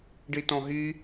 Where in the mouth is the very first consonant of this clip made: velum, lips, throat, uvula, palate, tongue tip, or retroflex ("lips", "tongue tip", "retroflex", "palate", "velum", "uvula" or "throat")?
retroflex